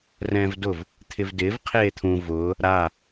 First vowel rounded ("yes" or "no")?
no